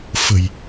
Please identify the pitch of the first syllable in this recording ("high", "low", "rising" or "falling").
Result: low